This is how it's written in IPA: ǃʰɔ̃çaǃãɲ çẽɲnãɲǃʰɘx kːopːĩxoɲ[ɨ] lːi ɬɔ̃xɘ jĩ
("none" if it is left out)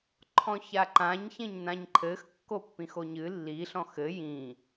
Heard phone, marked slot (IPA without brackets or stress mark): ɨ